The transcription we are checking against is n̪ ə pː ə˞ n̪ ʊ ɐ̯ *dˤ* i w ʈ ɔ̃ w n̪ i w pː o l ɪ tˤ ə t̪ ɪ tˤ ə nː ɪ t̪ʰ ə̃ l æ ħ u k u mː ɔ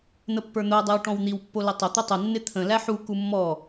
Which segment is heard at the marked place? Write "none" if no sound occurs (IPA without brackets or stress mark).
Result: dˤ